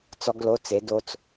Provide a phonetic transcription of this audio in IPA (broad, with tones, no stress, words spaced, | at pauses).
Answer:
t͡sɔ˦˥ɡlo˧˥˧t͡se˨˦ do˦˥t͡s